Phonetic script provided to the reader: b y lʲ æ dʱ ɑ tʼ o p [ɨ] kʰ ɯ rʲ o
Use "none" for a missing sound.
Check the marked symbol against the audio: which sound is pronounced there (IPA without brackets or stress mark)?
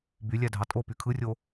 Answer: y